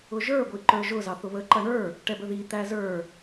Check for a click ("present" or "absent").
present